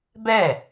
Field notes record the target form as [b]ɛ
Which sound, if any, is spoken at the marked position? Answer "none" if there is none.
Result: b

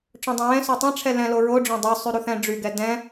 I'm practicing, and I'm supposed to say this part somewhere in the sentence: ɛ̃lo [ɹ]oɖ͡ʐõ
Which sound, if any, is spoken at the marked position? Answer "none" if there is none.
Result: ɹ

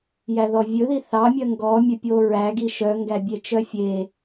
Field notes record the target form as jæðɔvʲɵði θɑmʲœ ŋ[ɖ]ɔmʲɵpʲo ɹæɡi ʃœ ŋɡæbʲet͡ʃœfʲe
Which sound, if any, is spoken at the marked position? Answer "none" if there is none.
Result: ɡ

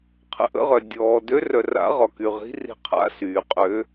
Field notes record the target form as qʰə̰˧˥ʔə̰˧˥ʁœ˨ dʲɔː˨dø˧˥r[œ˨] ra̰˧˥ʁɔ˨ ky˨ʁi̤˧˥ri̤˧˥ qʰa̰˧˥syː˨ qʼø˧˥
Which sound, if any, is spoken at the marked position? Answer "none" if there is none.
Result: œ˨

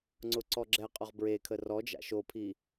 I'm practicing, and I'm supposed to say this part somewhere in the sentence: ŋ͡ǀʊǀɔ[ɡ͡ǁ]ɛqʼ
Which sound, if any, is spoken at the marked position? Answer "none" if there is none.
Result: ɡ͡ǁ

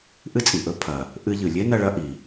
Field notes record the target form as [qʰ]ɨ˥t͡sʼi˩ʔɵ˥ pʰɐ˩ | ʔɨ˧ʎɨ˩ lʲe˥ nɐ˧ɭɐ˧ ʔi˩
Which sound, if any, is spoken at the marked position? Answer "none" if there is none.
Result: ʔ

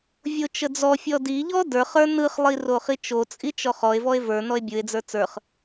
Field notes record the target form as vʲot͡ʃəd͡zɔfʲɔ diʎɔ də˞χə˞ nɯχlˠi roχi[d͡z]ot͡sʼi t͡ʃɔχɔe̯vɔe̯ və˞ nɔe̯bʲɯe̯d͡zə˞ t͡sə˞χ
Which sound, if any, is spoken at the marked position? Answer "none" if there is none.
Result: t͡ʃ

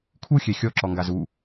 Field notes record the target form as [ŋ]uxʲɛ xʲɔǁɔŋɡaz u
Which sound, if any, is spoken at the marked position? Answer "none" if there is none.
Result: kʰ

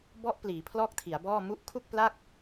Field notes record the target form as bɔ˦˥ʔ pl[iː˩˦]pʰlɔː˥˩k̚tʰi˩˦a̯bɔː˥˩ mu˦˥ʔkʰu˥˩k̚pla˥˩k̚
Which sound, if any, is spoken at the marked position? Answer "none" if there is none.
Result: iː˩˦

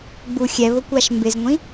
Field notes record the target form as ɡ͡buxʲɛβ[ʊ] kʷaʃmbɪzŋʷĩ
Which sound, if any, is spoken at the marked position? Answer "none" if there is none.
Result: ʊ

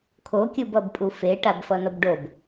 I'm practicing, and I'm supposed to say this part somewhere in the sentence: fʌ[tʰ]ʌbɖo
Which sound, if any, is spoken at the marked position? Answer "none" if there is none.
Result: n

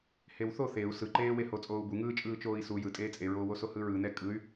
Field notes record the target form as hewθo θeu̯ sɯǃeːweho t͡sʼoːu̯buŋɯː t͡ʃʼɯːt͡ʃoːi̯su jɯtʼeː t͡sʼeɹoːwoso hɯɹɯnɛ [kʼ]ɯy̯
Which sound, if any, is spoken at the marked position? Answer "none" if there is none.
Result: kʼ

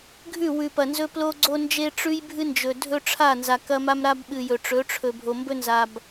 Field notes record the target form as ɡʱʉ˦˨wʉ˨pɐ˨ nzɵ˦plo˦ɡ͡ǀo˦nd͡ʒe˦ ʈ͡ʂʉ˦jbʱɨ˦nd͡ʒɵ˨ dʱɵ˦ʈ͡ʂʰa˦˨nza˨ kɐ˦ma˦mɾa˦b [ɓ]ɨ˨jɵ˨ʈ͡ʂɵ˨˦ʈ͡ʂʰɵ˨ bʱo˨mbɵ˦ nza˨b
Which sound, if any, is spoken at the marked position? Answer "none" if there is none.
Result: ɓ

